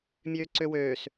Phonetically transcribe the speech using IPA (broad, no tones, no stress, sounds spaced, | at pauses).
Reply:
mʲ øː ǀ ø w øː s